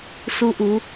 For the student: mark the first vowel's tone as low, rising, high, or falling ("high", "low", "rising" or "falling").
rising